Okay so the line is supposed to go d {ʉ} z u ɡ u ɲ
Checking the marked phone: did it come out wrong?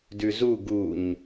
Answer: no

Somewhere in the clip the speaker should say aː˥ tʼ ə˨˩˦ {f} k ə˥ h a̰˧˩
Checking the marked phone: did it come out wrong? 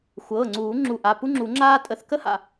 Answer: yes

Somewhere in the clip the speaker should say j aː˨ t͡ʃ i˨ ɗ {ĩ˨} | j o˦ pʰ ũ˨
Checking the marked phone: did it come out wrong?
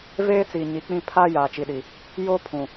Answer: yes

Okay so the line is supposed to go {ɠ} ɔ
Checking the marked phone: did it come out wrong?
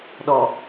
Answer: yes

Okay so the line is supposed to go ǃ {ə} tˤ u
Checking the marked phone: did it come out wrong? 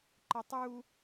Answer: no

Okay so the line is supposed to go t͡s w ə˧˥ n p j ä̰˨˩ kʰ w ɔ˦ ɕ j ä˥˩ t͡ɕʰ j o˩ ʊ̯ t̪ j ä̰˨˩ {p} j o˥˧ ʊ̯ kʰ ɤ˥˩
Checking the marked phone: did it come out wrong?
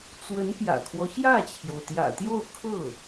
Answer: yes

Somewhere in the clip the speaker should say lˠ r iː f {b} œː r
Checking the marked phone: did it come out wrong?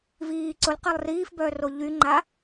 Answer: no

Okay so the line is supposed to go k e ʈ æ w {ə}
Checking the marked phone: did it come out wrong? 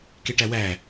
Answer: yes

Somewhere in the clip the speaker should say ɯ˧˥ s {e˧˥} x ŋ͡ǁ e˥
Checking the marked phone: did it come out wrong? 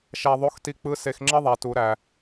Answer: yes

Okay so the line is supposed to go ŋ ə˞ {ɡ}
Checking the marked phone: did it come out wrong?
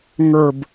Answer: yes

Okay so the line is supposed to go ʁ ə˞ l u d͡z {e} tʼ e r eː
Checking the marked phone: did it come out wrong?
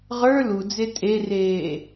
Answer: no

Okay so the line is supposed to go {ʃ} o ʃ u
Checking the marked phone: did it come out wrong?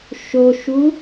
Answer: no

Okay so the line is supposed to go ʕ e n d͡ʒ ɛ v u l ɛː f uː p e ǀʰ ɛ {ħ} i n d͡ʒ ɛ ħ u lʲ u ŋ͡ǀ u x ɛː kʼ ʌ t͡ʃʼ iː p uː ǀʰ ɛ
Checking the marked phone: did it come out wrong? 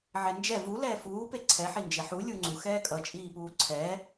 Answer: no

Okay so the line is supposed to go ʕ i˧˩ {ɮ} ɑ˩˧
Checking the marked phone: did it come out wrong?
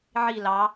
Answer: yes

